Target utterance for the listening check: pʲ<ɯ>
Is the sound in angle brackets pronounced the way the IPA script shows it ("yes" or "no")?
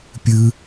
yes